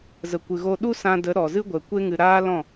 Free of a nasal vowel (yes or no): no